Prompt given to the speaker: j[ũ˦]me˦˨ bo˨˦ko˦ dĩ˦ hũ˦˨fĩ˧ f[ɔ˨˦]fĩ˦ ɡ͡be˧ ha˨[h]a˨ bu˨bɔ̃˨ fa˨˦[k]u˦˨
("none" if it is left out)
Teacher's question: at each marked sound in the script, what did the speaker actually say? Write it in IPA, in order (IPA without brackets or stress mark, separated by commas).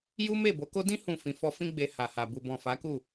u˦, ɔ˧, h, k